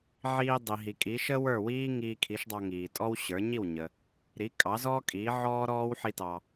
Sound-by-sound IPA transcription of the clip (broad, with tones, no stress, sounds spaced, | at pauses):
ʕ iː˧ dˤ i˩ ɦ i˩ kʼ i˩˥ ʃ ə˥ w ə˞˥˩ w iː˥ ŋ iː˧ kʰ i˩˥ ʃ dˤ ɑ˧ ŋ iː˩ tʼ ɔ˥ w ɕ ə˞˩˥ ɲ i˥˩ w ɲ ə˩ | ɾ i˩˥ kʼ ɑ˩˥ z ɔː˥ kʼ iː˩˥ ʕ ɔː˥ ɾ ɔː˥ w ħ i˥ t ɑ˧